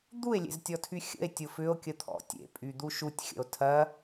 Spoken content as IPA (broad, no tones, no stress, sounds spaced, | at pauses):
d̪ u e̯ lʲ ḛ z tʲ ɔ tʰ y xʲ ə̰ e̯ tʲ ʊ f ʏ o̯ kʲ ə t̪ʰ ɔ̰ tʲ ḛ pʼ y d̪ u ʃ u tʲ xʲ ə̰ o̯ tʰ ɐ